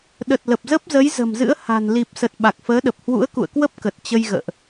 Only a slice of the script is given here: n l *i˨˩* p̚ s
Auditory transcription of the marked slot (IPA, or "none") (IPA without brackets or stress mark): i˨˩